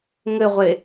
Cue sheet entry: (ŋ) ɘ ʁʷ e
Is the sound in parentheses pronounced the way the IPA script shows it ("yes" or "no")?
yes